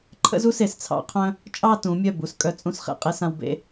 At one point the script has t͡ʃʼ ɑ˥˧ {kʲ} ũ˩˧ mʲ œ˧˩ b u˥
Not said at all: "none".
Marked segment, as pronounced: t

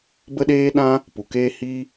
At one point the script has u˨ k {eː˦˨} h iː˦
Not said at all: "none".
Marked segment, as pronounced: eː˦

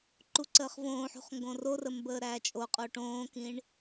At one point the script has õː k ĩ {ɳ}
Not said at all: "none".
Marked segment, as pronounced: ɳ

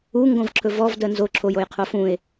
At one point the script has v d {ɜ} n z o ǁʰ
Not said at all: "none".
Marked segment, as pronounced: ɜ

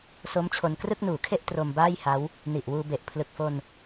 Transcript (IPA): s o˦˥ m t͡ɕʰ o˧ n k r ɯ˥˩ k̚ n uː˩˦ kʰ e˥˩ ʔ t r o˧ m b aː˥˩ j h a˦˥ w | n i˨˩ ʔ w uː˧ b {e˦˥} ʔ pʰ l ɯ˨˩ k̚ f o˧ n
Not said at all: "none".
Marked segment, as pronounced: e˨˩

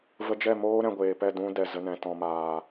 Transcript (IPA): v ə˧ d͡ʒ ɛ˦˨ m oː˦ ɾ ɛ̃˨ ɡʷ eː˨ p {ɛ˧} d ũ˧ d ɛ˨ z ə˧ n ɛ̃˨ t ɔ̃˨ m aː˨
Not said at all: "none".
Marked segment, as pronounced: ɛ˦˨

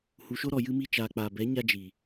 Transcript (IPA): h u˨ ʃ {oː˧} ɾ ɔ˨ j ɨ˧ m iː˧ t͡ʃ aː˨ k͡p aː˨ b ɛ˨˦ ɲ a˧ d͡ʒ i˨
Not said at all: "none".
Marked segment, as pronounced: o˧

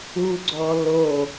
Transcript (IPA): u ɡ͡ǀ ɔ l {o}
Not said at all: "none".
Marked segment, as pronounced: o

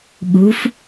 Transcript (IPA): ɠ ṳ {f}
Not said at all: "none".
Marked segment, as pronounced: f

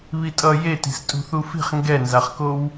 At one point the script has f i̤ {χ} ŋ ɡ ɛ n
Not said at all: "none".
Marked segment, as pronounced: χ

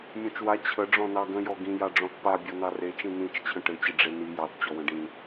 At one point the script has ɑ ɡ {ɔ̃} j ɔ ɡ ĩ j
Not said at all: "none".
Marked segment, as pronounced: ə̃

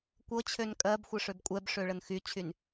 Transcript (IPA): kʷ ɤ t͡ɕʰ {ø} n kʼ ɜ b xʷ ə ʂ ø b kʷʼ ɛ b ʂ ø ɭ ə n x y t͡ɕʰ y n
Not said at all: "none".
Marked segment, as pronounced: ø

